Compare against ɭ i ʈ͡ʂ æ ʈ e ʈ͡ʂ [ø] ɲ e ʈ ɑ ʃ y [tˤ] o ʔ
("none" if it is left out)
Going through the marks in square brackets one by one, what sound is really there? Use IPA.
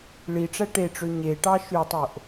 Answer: ø, tˤ

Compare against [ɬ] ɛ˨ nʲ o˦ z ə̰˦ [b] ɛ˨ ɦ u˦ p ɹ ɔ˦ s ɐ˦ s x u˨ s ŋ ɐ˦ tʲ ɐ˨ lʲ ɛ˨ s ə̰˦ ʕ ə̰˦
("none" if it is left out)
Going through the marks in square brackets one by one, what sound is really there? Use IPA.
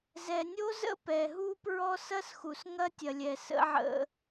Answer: z, p

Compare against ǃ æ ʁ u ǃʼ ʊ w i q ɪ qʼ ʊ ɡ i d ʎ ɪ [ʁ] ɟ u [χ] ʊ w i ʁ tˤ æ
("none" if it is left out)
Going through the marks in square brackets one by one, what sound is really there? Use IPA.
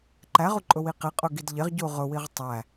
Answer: ʁ, ʁ

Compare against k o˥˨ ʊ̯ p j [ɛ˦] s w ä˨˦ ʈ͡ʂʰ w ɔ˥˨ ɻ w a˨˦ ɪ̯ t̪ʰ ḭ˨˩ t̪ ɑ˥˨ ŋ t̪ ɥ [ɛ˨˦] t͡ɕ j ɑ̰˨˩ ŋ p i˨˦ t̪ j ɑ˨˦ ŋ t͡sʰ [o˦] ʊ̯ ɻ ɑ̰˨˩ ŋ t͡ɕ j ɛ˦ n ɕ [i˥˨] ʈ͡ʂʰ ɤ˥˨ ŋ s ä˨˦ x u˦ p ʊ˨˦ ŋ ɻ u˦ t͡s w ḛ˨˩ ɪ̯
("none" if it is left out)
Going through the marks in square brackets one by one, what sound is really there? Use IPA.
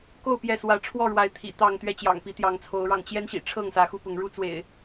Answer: ɛ˥˨, ɛ˥˨, o˨˦, ḭ˨˩

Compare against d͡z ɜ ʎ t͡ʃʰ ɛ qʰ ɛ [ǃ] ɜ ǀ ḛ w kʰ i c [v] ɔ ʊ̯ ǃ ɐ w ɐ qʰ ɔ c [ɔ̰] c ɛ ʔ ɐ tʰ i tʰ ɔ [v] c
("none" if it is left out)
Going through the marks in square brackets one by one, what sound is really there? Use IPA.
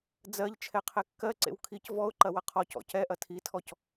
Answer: kː, v, ɔ̰, none

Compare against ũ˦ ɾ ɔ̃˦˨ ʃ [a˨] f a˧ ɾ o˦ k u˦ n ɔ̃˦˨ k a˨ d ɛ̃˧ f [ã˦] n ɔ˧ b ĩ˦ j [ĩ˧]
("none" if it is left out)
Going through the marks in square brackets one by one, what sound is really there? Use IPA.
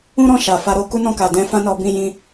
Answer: a˨, ã˦, ĩ˦

